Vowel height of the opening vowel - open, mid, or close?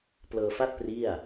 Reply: mid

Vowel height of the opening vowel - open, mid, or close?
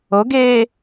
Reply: mid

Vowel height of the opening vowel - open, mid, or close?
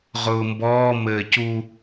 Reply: close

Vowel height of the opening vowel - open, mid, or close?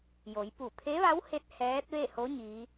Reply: mid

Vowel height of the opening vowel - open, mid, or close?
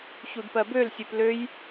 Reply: close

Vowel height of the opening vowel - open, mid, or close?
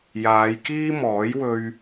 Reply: open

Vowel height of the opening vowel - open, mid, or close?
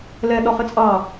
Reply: mid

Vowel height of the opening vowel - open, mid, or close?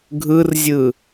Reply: close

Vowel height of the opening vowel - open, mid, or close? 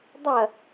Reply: open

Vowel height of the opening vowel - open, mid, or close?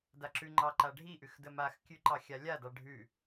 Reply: open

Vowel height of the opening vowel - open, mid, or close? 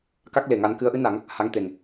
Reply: open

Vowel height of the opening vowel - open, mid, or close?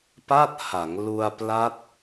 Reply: open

